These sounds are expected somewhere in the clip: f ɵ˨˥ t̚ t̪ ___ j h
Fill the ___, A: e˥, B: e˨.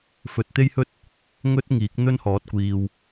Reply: A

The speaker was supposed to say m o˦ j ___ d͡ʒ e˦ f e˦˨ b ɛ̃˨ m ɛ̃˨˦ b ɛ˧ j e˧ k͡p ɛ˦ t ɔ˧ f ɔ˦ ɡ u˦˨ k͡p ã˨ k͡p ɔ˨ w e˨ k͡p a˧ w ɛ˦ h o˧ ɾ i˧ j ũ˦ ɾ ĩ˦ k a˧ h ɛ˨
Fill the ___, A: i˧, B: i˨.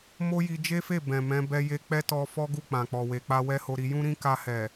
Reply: A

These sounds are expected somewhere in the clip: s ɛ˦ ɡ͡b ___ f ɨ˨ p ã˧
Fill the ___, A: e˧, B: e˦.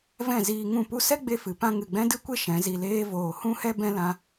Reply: A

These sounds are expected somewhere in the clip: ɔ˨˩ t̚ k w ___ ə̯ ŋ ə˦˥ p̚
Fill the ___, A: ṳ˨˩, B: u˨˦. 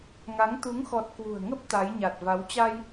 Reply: A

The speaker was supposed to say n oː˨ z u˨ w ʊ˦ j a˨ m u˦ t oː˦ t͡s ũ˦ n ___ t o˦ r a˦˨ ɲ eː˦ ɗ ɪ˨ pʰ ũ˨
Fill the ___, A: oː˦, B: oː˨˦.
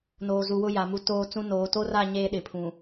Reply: B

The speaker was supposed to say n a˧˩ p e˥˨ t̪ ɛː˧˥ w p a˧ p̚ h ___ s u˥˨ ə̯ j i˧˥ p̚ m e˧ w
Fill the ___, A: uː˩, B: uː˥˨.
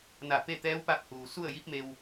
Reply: A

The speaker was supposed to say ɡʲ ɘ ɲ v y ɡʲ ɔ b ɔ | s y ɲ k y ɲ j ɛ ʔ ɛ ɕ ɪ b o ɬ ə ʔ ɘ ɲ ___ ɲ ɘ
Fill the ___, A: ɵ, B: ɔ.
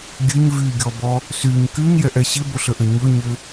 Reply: A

